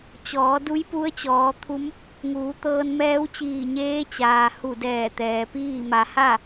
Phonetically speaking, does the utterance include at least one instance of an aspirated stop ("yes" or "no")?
yes